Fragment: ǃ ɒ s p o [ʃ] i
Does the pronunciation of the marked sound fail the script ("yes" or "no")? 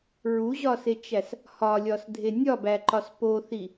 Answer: yes